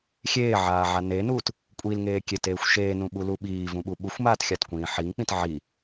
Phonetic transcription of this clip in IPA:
xʲ eː ʕ aː ʕ a n e n uː t | kʷʼ i l ŋ eː kʲ e t eː xʷ ʃ eː n ũ ɓ u l u ɓ iː v ũ ɓ u ɓ u xʷ m aː t xʲ a t kʷ ĩː ħ i ŋ k͡p ĩ t ʕ i

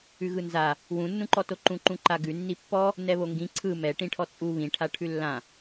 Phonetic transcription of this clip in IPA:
ʉ ɣ ɯ n z a | w ũ nː ũ ǃ ɔ t o ǃ ũ ǃ ũ ǃ a ɡ ʉ nː i pː ɔ | n ɛ β o ŋ ɡ ĩ ǀʰ ɯ m ɛ ʈ ĩ ʈʰ ɔ t͡sʼ u β ĩ ʈʰ a ʈʰ ʉ lː ã

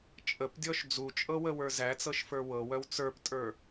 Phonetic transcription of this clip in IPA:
t͡ʃʼ ə p dʲ ɔ ʃ d͡z u t͡ʃʼ ɤ w ə w ə˞ z æ t͡s ɤ ʃ f ə˞ w ɤ w œ w t͡s ə˞ p tʼ ə˞

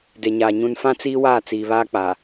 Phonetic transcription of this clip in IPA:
d e˨ ɲ aː˨ ɲ ũ˨ n f ã˦ t͡s iː˦ w aː˦˨ t͡s iː˨ β aː˦ k͡p a˨

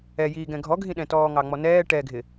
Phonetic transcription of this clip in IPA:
ɛ j iː ɡ ɛ̃ ɡʱ ɔ ɡʱ ĩ ɗ ɛ̃ t ɔː ŋ ɑ ŋ͡m ɔ n ɛː ʈ ɛ ɡʱ ɪ

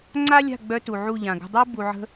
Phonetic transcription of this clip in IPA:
ŋ͡ǀ a˦ lʲ a̤˦˨ ɡ͡b œ˧ t u˨ ʕ u˦˨ ʎ ã˨ ɡ ə̤˧ dˤ i˦ b u˨ ʕ ə̤˧

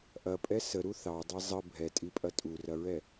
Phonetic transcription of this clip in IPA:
ʔ ɐ pʼ ɛ s ə ɾ u θ ɑ dˤ i zˤ ə bʱ ɛ tʼ i pʼ ɐ tʼ u r ɐ ɹ ɛ

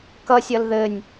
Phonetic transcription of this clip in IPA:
k ʌ sʲ ʌ l ð ɘ nʲ

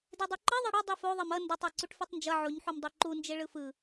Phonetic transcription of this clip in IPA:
d e dˤ u ǃ i ðˤ ɛ ɽ ʌ dˤ i f o ðˤ e m ʌ n d ʌ tˤ ɛ ǀ u ʈ f i tˤ n d͡ʒ ʌ ʕ o ɲ ħ u m dˤ e ǃ u n d͡ʒ e ɭ ɯ f ɯ

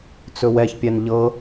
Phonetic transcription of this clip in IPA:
t͡s ɵ w ɛ ç pʲ ɛ n ʎ ɤ

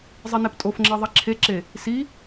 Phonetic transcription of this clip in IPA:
zˤ i n e p tʼ o f ŋ͡ǁ e ðˤ i ǁʰ e ǁ e | s i

